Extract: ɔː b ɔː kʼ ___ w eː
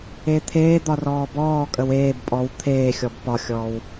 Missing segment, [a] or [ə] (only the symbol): ə